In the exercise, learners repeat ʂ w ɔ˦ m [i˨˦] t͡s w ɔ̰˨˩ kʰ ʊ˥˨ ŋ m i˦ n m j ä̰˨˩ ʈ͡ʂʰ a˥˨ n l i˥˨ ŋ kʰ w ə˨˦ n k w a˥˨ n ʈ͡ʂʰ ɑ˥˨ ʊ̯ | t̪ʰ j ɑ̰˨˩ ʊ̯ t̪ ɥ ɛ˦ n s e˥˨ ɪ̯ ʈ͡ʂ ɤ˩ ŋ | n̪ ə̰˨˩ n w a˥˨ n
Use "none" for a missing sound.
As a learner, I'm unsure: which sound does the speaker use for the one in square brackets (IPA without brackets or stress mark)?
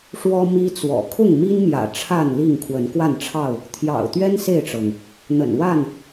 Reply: i˦